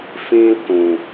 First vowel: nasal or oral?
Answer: nasal